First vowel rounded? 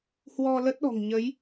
yes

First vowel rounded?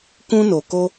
yes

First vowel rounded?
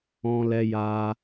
yes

